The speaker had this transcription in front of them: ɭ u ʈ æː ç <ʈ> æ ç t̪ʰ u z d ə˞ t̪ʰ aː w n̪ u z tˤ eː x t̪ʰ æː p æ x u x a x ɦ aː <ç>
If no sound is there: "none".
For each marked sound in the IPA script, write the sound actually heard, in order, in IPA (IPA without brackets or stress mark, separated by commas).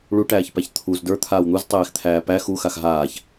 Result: p, ç